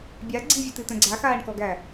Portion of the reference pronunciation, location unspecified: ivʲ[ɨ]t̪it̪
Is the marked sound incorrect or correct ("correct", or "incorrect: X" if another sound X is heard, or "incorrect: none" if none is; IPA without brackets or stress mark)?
correct